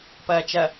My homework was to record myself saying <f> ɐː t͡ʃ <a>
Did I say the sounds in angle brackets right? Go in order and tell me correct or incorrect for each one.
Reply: incorrect, incorrect

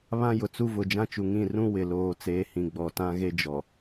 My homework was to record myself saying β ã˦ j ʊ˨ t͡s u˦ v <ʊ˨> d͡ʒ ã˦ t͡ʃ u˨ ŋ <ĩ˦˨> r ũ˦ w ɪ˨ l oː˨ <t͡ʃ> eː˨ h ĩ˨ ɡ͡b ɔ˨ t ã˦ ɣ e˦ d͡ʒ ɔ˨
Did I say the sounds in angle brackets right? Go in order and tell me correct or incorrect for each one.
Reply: correct, correct, incorrect

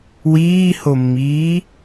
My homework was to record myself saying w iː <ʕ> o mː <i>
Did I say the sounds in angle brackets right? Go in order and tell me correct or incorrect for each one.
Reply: incorrect, incorrect

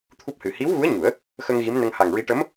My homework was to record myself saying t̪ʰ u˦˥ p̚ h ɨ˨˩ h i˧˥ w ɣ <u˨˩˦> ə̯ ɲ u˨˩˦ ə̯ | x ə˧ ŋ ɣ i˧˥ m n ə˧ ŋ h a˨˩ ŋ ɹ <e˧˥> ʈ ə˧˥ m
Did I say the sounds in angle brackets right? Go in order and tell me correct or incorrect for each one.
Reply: incorrect, incorrect

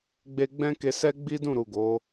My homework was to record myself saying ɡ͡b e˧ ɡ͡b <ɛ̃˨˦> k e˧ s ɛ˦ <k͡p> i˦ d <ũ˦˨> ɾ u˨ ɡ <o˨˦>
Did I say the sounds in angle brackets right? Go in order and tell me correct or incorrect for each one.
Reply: incorrect, incorrect, correct, correct

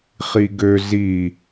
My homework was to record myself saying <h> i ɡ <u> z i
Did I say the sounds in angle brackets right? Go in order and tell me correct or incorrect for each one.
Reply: incorrect, incorrect

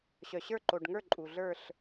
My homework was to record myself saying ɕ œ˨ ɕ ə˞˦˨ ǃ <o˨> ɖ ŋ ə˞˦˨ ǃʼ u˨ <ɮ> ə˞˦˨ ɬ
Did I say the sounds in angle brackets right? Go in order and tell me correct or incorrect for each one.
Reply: correct, correct

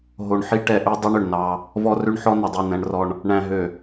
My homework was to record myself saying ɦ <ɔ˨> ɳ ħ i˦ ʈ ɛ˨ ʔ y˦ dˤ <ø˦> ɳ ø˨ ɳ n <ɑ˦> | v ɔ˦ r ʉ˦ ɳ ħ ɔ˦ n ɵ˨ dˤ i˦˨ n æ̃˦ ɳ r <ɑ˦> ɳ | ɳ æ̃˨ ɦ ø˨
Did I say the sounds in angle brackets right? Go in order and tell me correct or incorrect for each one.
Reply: incorrect, incorrect, correct, incorrect

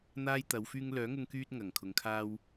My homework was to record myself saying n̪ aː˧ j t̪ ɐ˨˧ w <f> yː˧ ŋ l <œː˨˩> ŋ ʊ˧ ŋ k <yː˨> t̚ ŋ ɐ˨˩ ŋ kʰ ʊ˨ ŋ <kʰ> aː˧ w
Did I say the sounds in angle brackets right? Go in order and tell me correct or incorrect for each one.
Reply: correct, incorrect, incorrect, correct

